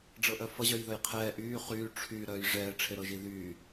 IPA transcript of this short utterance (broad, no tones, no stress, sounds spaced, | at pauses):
ɖ͡ʐ ɤ ʔ œ f ʌ ʑ œ j ð œ j qʰ ɛː ʔ yː χ yː ʈ͡ʂʰ y ɾ œː j ʐ ɛː ʈ͡ʂʰ e ɾ ɤ ʒ i ð yː